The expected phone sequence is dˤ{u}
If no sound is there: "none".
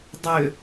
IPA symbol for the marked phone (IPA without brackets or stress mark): ʏ